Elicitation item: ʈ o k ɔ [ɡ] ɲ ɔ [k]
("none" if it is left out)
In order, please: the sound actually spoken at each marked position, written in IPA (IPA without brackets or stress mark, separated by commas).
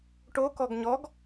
ɡ, ɡ